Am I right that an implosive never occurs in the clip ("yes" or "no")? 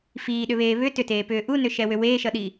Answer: no